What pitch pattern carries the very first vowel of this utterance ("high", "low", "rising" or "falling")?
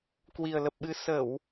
low